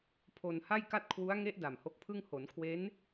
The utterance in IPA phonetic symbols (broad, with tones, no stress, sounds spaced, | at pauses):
pʰ o˧ n h a˥˩ j k a˥˩ t̚ kʰ w u˦˥ a̯ ŋ e˦˥ ʔ d a˨˩ m h o˦˥ k̚ pʰ ɯ˥˩ ŋ h o˩˦ n kʰ w e˦˥ n